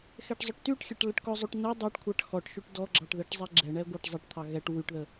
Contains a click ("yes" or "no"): yes